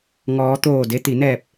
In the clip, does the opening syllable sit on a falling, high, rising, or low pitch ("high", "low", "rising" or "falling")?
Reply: rising